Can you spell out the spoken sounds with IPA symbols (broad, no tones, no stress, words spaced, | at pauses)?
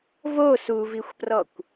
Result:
vo suvixʷprɔkʷ